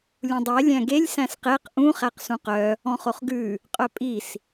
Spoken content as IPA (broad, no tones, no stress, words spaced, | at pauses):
lʲũdˤe lʲæ̃ɡelʲ sæ̃sqeq ʔũ χæqsũqœ | ɔ̃χoχɡʉ | qʼœpʼis